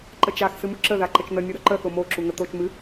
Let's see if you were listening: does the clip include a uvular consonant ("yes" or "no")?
no